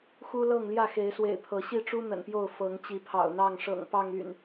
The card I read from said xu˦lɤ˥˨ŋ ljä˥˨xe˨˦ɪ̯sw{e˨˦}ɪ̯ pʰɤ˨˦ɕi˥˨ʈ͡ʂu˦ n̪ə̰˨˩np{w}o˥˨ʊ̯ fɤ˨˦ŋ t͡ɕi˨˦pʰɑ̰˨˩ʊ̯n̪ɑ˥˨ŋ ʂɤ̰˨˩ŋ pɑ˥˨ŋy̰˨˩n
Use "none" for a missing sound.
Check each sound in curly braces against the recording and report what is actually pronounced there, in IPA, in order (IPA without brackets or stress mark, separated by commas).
ḛ˨˩, j